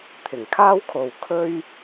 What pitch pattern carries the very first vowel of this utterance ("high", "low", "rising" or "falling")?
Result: low